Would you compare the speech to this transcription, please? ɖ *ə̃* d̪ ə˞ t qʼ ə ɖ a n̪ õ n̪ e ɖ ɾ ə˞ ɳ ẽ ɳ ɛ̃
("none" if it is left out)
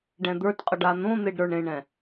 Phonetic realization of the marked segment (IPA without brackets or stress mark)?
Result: ɛ̃